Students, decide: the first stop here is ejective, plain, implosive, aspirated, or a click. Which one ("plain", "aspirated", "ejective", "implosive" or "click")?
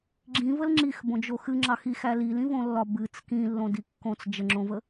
click